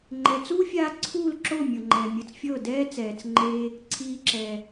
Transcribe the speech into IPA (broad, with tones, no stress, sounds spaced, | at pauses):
ŋ͡ǃ ɛ˨ t͡s uː˦ fʲ aː˧ ǀʰ uː˦˨ l ǁ o˦˨ mʲ ɤ˨ ŋ͡ǃ ɛː˨ mʲ ɯ˨ t͡s fʲ ɤː˦˨ d ɛː˦ t͡s ɛː˨ t͡s ŋ͡ǃ eː˧ | ǀʰ iː˧ ǁ ɛː˨